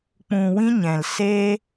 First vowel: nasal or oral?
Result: nasal